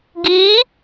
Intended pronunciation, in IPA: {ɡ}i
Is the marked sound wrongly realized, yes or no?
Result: no